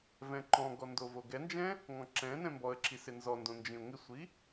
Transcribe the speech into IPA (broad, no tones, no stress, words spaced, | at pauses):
vɛ̃ǃɔ̃ɡɔ ndovoɡɛnd͡ʒɛ̃ | ŋɔ̃ǁɛ̃nɛ̃ mbɔə̯ǁi sɪnzɔndõ nd͡ʒĩʊ̯ŋɪsʷi